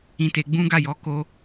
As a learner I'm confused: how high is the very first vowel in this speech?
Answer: high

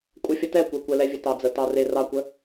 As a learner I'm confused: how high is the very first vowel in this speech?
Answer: mid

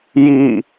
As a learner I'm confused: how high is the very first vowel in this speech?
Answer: high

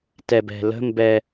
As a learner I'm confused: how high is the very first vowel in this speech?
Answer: mid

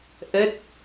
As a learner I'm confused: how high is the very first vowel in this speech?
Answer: mid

